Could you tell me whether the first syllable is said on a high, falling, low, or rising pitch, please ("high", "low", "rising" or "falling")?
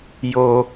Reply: low